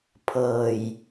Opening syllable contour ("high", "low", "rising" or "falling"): low